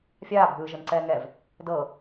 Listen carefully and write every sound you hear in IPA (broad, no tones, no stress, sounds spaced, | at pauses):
fʲ aː bʱ ɯː ʒ ɯ n ǀ ɛː ŋ ɛ v | d ɤ